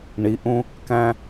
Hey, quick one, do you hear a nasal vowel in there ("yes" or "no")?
yes